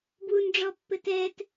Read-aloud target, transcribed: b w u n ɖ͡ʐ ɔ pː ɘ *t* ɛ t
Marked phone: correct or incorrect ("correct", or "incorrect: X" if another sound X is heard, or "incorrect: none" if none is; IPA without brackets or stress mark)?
correct